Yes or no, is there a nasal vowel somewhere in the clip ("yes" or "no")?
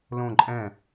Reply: yes